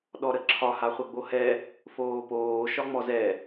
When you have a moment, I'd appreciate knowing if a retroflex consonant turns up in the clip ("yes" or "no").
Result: no